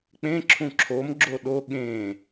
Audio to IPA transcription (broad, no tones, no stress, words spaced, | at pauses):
k͡pẽ ǁʰũǁʰom ɡ͡ǁoɗo ɠẽ